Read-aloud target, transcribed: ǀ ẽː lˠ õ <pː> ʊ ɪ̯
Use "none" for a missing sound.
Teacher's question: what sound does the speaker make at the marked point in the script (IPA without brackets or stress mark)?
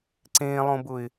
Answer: b